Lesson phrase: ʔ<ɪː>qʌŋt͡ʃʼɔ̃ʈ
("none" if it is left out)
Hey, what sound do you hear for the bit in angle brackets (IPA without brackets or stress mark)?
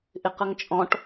ɪ